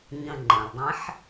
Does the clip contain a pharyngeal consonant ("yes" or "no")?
yes